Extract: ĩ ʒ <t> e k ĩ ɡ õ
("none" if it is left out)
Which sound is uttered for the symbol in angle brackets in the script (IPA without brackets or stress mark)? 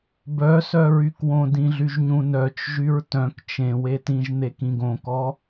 n̪